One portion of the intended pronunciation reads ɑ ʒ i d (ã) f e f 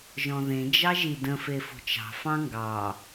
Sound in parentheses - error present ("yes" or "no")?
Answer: yes